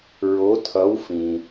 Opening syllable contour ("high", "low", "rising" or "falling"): rising